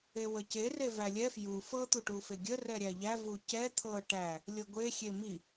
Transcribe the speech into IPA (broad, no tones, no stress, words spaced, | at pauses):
ewəce revælʲɛ fju fɤ t̪uʈufeɡʲə rɛɾʲæʎæ vucɛ t̪ʰɤ ʈæ | lʲɤɡʷe xʲemi